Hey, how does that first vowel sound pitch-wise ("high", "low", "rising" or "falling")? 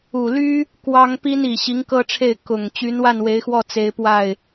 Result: low